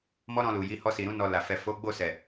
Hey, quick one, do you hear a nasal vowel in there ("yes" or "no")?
yes